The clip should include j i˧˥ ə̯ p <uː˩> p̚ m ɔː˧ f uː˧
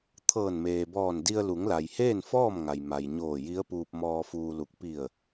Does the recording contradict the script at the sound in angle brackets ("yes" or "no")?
yes